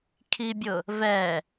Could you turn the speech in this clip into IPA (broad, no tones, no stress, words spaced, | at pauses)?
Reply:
kʰibʲʊ | vɛ